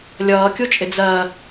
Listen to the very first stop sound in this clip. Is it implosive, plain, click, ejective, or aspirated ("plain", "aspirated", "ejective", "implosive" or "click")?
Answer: plain